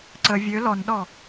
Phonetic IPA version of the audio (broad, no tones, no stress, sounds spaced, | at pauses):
ǀ ə vʲ ø l ɔ n ɗ ɔ